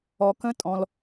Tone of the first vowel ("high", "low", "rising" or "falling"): low